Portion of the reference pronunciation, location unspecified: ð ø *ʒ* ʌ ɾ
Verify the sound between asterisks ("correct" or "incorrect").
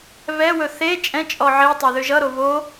correct